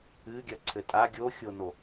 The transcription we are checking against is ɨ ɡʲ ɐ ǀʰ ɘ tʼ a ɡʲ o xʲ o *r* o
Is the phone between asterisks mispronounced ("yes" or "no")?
yes